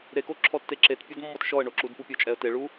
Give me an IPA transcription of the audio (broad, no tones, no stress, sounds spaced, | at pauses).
ɾ e k o ǁʰ ɔ tː e ǁ e t pʲ ɔ d mː ɔ t ʃ ɔ ə̯ ɳ o ǁ u d p u pʲ ɔ t͡ʃʼ ɛ ə̯ t e ɭ u